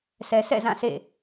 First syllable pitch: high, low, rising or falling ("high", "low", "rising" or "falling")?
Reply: low